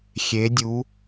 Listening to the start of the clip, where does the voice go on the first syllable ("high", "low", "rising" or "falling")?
rising